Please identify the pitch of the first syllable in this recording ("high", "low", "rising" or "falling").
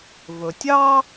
low